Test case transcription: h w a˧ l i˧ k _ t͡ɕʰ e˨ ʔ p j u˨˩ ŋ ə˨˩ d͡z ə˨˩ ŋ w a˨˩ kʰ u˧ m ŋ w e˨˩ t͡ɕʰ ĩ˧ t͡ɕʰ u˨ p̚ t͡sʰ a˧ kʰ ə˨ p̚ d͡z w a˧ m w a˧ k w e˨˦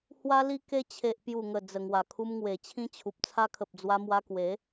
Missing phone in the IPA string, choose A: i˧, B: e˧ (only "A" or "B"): B